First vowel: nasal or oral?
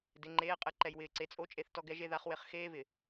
oral